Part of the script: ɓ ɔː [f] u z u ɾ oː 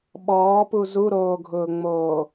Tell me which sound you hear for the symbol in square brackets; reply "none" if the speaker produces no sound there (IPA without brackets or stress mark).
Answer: p